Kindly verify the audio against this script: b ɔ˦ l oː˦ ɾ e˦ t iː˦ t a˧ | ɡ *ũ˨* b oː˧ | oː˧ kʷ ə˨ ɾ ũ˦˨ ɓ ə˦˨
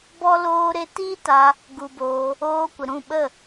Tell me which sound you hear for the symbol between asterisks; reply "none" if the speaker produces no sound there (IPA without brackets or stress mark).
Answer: u˨